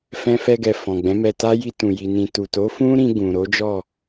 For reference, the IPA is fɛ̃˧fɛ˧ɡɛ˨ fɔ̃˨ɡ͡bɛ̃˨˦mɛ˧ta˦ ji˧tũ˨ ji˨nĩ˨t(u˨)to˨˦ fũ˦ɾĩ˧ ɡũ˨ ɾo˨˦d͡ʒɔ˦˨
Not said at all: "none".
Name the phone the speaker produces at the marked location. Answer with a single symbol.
u˨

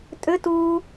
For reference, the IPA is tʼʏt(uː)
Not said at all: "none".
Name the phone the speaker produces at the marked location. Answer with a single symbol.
uː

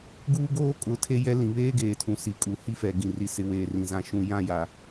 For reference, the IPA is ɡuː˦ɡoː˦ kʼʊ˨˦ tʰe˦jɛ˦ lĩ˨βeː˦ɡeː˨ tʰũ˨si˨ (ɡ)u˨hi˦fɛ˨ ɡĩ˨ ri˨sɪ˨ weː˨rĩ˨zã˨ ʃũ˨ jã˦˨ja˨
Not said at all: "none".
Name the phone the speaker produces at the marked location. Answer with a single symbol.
kʼ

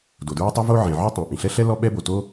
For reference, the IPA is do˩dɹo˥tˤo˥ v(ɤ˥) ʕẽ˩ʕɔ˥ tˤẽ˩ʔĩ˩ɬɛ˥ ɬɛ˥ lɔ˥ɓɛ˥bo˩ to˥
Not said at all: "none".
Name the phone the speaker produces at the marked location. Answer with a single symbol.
o˥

